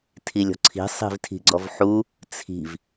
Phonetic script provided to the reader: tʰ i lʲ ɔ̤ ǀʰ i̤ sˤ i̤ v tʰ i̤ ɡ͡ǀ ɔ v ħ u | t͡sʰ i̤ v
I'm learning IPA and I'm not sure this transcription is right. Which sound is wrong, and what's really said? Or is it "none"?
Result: none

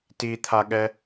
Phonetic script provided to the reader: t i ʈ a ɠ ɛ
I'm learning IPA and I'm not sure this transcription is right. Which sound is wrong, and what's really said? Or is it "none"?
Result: ʈ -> t̪ʰ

